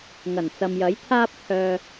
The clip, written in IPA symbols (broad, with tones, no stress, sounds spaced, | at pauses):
ŋ ɐ˨˩ n t͡s ɐ˨ m j ɐ˨˥ j t̪ʰ aː˥ p̚ t̪ʰ œː˧